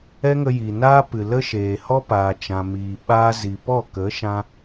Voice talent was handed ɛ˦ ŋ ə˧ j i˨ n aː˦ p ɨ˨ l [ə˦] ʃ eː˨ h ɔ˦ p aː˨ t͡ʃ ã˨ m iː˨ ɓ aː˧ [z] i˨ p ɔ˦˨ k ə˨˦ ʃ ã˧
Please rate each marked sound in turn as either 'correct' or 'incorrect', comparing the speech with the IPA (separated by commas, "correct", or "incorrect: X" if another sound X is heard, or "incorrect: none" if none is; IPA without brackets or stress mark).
correct, correct